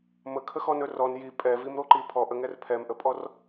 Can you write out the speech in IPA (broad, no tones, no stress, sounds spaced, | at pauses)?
m ə kʰ ə x ɔ n ɵ r ɔ n j i pʼ ɛ v i m ɾ o ǃ i pʰ ɔ ʔ ə ŋ ɛ r pʰ ɛ m ʔ ə pʼ ɔ r